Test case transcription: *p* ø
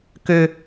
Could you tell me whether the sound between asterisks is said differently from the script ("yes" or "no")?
yes